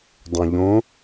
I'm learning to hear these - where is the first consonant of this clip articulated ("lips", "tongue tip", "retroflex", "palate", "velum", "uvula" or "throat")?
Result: tongue tip